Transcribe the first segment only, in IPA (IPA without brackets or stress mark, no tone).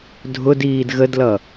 dʱ